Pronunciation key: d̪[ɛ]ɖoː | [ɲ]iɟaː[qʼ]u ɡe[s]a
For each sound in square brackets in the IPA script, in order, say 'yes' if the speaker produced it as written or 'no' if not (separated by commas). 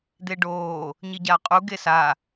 no, yes, yes, yes